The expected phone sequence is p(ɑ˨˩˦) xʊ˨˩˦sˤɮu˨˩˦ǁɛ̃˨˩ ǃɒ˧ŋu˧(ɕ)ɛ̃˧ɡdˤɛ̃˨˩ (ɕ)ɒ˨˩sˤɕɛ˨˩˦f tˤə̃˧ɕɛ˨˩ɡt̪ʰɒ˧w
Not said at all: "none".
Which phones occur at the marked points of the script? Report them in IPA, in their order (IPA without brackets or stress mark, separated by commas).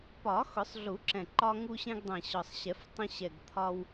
ɒ˨˩˦, ɕ, ɕ